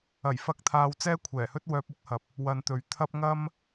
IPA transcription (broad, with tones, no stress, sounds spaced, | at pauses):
ɐ˨˩ j f ɐ˨˥ k̚ t̪ʰ aː˨ w t͡s ɛː˥ kʷʰ ɛː˨˩ h ɵ˥ t̚ w œː˧ p̚ ʊ˥ k̚ h ɐ˨˥ p̚ | w ɐ˧ n t̪ ɵ˨˧ ɥ t̪ʰ ɐ˥ p̚ ŋ ɐ˥ m